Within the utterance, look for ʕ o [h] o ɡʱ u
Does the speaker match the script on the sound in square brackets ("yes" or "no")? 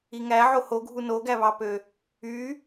yes